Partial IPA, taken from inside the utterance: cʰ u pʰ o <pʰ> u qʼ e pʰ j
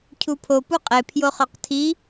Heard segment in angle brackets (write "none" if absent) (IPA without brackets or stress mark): p